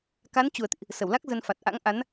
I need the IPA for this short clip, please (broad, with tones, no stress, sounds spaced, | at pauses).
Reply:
k a˨˦ n t͡ɕ u˨˩ ə̯ t̪ ḭ˧˨ ʔ | s ə˧˩ w l a˦˥ k̚ z ə˧ n f a˨˩ t̚ ʔ a̰˧˥ ŋ ʔ a˨˦ n